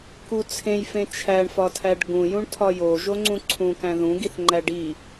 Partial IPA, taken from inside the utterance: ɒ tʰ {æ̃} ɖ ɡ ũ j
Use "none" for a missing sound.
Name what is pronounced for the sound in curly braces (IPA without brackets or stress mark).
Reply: æ